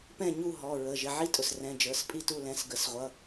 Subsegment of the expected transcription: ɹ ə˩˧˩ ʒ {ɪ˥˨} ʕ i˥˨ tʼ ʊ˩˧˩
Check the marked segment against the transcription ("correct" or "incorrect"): incorrect